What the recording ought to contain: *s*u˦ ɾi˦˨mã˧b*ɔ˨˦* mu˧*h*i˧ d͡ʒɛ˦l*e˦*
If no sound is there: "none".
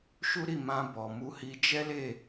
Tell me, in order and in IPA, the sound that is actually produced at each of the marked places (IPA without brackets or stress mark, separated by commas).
ʃ, ɔ˨, h, e˦˨